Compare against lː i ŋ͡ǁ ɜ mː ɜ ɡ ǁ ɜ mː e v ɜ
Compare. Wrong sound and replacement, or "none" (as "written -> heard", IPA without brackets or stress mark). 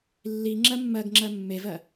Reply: ǁ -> ŋ͡ǁ